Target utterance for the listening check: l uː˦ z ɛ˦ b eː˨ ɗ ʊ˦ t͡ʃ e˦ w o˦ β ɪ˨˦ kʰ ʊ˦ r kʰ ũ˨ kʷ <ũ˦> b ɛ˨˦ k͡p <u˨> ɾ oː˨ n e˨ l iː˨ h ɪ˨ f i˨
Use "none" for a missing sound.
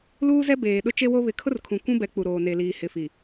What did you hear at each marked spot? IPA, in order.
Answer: ũ˦, u˨

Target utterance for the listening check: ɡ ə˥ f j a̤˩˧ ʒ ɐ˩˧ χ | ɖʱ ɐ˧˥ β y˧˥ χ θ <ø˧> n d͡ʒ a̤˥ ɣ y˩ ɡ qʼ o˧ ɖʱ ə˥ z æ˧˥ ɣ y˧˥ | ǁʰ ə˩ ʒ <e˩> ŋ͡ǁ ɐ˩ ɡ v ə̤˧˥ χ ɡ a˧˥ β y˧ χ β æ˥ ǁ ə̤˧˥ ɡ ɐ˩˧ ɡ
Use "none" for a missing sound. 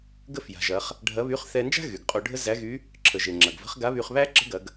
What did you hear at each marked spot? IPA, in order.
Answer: ɛ˧, e˩

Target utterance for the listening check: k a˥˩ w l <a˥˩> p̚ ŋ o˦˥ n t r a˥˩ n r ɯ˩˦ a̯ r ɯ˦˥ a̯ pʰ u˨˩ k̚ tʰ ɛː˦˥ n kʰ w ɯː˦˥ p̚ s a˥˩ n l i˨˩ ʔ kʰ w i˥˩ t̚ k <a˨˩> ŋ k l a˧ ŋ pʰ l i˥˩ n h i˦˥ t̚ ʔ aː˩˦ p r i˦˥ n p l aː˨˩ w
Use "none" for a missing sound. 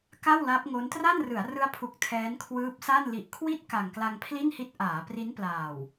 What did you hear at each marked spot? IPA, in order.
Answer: a˦˥, a˨˩

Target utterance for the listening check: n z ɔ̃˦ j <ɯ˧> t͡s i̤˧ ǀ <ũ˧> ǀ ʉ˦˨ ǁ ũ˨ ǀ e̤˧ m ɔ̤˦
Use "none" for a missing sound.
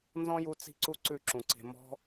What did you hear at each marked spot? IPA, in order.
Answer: u˧, u˧

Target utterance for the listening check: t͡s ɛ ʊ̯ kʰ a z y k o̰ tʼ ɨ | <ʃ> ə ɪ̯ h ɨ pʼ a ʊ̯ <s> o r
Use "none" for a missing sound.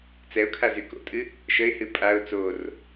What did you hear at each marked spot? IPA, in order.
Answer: ʃ, t͡s

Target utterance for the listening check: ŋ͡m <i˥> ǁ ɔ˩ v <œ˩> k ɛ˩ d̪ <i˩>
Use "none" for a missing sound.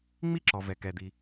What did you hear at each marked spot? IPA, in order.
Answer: i˥, ɛ˩, i˩

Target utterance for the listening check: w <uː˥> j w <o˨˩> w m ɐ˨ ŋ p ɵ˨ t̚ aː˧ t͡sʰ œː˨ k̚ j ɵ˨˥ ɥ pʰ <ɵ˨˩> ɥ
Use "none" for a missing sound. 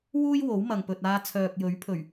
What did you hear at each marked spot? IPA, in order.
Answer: uː˥, o˨˥, ɵ˨˩

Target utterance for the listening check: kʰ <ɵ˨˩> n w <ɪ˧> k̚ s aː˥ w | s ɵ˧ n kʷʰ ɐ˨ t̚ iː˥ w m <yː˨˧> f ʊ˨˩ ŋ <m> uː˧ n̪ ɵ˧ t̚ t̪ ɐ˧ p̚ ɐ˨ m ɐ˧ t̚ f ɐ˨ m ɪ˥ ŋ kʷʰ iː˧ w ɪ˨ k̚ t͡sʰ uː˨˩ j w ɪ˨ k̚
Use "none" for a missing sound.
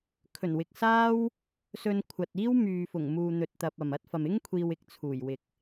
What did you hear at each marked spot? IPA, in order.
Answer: ɵ˨˩, ɪ˨, yː˨, m

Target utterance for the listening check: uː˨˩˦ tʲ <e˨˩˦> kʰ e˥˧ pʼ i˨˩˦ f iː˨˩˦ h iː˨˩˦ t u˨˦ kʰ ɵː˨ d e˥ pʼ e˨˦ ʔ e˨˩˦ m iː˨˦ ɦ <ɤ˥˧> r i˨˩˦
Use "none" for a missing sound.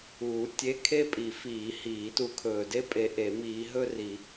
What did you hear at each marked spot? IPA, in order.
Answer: e˧˥˧, ɵ˥˧

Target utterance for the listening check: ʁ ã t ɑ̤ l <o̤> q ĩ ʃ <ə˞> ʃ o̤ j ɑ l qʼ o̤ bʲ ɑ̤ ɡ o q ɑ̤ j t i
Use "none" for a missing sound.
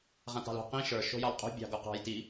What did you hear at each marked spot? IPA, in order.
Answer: o̤, ə˞

